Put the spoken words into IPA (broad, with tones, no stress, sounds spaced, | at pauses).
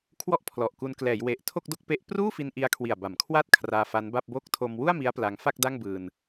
kʰ w ɔ˥˩ ʔ pʰ l ɔ˨˩ ʔ k u˧ n k l ɛː˩˦ j w e˨˩ ʔ tʰ o˥˩ k̚ d o˥˩ k̚ p e˦˥ ʔ p r uː˥˩ f i˧ n ʔ i˦˥ a̯ kʰ w i˨˩ a̯ b a˩˦ m kʰ w a˥˩ t̚ kʰ r aː˧ f a˦˥ n b a˥˩ p̚ b o˥˩ k̚ tʰ o˧ m w u˥˩ a̯ m i˦˥ a̯ p l a˧ ŋ f a˥˩ k̚ d a˥˩ ŋ b ɯː˧ n